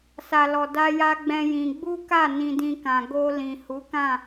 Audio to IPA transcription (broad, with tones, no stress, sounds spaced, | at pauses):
s a˨ l ɔ˨ d a˧ j a˧ ɡ͡b ɛ̃˧ j ĩ˧ ɡ͡b u˦ k a˦˨ n ĩ˧ d ĩ˧ k ã˨ ɡ o˧ l ĩ˨ h u˨˦ k ã˦˨